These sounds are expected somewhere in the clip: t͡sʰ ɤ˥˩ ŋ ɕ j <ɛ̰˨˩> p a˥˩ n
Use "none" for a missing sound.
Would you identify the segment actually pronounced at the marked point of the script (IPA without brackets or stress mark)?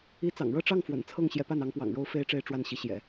ɛ˧˥